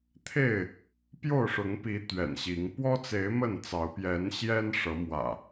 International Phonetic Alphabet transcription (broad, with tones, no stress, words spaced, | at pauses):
t̪ʰe˥˨ɪ̯ | pjo˥˨ʊ̯ʂʊ˨˦ŋpi˨˦ t̪ɥɛ̰˨˩nɕi˨˦ŋ pwɔ˦t͡se˨˦ɪ̯ mə˥˨nt͡sɑ˨˦ʊ̯ pjɛ˨˦nɕjɛ˦n ʂɤ˨˦mwä̰˨˩